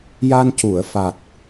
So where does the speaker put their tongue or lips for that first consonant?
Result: palate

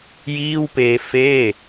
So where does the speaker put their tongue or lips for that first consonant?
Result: palate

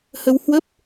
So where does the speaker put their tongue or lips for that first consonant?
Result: throat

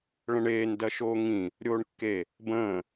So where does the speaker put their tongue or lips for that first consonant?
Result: retroflex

